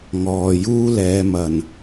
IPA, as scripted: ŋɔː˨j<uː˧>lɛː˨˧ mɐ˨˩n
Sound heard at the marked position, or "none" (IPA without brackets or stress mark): uː˥